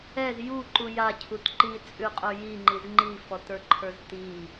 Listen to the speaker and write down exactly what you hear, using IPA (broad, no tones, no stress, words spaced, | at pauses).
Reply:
ɛz juǃu jacʰut ǃit͡sʼʉqʼə˞ jiŋ͡ǃiz ŋ͡ǃifɔtə˞ǃʰə˞z ti